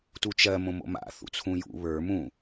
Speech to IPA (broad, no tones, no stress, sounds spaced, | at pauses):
t u t͡ʃ ɜ m õ m o̰ m a̰ θ ṵ t͡sʰ ũ j ṵ β ə˞ m ũ